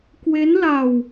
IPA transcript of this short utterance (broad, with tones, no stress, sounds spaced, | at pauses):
k w e˦˥ n l a˧ w